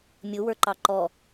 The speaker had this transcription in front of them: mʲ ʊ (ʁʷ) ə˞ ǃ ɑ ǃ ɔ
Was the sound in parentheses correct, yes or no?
no